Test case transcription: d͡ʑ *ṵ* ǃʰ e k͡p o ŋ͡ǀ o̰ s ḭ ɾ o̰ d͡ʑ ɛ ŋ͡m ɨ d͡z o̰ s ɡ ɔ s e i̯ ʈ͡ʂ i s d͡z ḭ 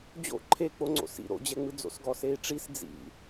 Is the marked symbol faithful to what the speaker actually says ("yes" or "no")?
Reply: no